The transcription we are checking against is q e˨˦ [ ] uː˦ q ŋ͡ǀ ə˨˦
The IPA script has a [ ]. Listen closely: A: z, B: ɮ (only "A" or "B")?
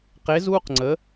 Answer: A